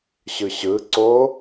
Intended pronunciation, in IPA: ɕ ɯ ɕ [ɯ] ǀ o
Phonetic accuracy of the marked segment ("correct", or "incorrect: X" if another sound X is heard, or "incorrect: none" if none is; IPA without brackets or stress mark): correct